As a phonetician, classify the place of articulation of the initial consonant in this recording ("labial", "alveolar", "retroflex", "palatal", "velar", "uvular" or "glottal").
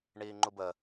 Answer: retroflex